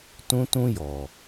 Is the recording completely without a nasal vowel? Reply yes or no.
no